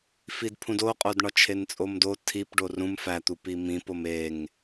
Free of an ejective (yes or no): no